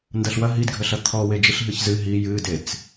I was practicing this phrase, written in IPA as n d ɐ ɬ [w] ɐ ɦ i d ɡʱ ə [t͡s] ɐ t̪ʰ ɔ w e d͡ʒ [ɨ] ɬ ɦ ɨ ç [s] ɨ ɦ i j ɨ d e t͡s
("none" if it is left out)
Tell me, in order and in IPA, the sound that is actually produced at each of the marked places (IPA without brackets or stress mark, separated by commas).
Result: w, ɬ, i, z